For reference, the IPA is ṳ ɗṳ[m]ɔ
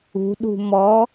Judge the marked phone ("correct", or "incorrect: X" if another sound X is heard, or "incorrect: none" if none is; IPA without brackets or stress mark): correct